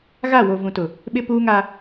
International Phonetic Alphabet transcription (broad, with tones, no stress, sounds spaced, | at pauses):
ɣ a˦˨ w o˨ v ũ˨ t ʊ˨ | ɓ ɪ˦ p uː˦ ŋ a˦